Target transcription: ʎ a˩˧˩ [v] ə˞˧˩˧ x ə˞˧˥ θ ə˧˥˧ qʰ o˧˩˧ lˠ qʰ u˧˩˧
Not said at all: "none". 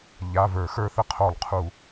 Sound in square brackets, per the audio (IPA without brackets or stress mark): v